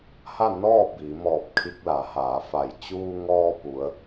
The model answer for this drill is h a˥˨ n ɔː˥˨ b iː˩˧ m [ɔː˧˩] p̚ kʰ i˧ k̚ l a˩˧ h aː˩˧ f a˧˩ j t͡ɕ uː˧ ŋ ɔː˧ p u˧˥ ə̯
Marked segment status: correct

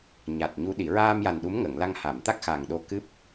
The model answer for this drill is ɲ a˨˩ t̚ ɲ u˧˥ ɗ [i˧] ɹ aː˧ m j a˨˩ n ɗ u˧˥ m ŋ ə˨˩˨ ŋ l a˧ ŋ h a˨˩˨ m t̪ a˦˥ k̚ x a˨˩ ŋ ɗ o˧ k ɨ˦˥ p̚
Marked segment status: incorrect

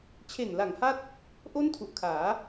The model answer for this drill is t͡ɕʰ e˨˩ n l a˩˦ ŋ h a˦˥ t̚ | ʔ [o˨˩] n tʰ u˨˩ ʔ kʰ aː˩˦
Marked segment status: incorrect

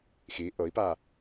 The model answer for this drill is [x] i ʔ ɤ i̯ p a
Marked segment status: correct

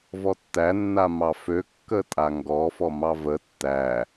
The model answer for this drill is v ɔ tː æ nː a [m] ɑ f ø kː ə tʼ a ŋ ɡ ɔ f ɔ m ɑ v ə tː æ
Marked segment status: correct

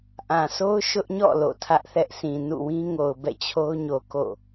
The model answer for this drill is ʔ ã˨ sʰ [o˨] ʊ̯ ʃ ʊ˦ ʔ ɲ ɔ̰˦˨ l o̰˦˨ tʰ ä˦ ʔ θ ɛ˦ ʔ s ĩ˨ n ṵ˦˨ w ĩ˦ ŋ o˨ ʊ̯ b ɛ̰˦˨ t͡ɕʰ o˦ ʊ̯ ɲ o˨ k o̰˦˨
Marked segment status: incorrect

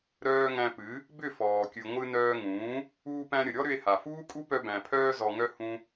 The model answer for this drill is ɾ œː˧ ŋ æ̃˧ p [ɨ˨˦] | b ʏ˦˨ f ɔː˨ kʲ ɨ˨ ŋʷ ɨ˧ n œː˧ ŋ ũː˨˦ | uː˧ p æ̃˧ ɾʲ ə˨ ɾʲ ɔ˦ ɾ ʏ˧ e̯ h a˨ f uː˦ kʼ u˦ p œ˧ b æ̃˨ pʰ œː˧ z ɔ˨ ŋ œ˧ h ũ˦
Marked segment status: correct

